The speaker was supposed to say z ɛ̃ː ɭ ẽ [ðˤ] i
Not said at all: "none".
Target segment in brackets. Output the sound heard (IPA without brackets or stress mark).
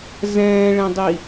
dˤ